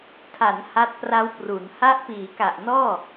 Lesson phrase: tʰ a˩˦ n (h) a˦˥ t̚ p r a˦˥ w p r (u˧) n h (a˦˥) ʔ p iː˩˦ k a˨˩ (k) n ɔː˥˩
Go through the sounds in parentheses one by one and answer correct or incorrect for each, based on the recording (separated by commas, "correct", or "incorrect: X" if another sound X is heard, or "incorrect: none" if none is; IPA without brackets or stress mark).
correct, incorrect: u˩˦, correct, incorrect: ʔ